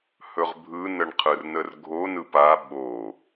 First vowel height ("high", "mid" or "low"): mid